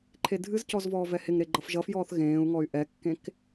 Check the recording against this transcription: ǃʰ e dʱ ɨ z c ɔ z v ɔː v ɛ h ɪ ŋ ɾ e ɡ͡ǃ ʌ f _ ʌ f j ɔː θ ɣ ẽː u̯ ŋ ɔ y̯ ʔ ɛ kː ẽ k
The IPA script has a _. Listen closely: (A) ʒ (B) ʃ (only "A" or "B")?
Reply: A